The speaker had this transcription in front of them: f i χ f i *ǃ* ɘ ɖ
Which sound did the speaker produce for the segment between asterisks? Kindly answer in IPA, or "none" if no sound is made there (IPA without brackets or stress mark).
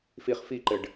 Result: ǃ